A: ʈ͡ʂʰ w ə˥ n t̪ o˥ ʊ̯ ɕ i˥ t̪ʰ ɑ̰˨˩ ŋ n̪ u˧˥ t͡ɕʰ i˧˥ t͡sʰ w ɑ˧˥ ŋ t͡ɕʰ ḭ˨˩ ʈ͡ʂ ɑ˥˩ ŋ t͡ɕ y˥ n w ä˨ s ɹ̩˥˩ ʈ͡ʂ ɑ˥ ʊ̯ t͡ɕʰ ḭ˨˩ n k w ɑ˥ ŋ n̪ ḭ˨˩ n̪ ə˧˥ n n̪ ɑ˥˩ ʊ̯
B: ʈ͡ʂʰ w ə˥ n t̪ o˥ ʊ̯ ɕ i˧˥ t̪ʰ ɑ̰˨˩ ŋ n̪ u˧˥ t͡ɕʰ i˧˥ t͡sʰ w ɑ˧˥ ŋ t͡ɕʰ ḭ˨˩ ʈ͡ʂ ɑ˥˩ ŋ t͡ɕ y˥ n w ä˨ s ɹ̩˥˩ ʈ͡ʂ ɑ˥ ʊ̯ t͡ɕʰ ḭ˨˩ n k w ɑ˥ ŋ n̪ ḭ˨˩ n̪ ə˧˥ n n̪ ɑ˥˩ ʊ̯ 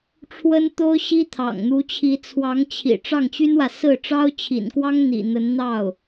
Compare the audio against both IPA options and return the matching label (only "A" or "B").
A